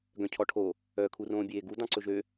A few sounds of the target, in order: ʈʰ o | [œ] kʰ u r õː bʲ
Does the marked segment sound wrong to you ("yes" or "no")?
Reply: no